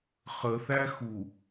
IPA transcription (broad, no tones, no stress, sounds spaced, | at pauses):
χ ə θ æ x u